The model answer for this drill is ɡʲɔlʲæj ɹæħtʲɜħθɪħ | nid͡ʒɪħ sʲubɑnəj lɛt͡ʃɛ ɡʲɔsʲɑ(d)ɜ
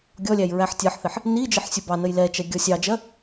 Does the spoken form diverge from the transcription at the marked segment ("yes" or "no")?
yes